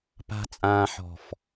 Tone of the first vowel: low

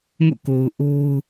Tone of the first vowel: falling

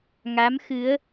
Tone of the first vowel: rising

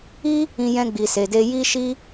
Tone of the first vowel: high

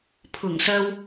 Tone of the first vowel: low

